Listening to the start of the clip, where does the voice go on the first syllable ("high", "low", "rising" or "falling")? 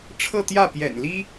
falling